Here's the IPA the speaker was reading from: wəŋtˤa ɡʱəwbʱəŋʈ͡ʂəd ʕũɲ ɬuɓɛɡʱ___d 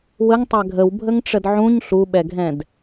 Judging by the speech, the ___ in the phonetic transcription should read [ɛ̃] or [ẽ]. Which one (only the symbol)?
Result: ɛ̃